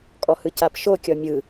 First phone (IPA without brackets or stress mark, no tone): kʼ